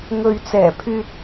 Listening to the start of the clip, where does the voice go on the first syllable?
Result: low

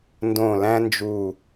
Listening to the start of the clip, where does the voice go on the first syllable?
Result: falling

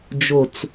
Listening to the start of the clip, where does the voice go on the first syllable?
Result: low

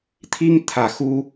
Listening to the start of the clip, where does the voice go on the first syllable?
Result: high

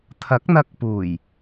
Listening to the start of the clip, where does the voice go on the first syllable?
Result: rising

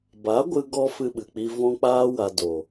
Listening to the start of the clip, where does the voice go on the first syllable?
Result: rising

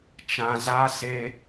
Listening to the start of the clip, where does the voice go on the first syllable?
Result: high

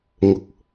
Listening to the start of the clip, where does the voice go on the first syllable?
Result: rising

